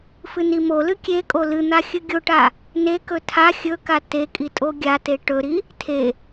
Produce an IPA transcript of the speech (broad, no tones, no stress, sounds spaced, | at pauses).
f ɨ n i m o l ɨ kʲ e kʼ o l ɨ n̪ a xʲ ɨ ɡʲ o ʈ a | n e k ɵ tʰ a xʲ ɵ k a t e kʼ i tʼ o ɡʲ a t e ʈ ɵ ɾ i | tʰ e